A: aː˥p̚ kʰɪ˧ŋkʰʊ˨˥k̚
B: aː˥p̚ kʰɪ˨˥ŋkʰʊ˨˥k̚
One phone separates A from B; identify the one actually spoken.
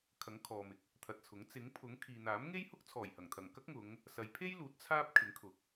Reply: B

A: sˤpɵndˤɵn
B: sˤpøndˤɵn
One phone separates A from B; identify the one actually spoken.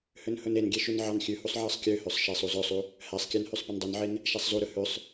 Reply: A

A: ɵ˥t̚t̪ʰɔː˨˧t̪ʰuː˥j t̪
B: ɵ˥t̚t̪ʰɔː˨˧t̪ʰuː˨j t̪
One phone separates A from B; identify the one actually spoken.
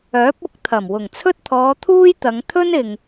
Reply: A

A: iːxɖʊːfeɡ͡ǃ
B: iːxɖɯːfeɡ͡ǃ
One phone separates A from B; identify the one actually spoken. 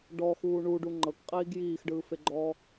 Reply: B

